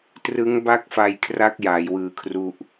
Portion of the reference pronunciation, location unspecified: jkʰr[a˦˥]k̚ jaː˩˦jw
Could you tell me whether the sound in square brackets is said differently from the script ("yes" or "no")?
no